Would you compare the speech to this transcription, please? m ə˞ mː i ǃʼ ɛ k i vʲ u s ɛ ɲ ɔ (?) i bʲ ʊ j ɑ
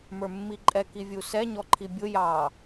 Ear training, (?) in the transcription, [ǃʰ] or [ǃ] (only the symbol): ǃʰ